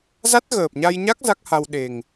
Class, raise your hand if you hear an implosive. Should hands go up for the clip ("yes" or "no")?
yes